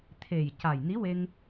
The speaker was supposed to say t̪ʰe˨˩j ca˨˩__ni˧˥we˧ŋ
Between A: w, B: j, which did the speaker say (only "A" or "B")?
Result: B